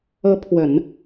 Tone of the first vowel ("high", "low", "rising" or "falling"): rising